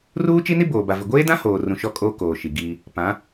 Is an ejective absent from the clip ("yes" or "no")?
no